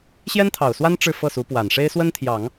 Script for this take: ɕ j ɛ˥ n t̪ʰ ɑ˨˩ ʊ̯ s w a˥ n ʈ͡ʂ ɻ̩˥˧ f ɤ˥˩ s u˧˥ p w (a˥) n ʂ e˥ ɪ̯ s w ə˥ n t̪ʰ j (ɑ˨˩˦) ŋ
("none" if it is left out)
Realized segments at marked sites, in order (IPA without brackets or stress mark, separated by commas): a˨˩, ɑ˨˩˦